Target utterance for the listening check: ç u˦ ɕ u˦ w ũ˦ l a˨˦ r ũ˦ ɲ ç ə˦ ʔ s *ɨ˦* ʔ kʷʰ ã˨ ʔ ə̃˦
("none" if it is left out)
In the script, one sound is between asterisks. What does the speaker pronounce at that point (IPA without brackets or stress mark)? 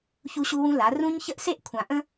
e˦